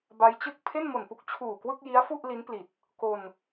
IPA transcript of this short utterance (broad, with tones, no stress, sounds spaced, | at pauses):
b a˦˥ j t͡ɕ ɯ˥˩ k̚ pʰ e˥˩ n m o˨˩ n p u˥˩ k̚ t͡ɕʰ uː˨˩ k w ɯ˥˩ k̚ j i˦˥ a̯ f u˥˩ ʔ l i˦˥ n p l i˨˩ t̚ | k o˧ n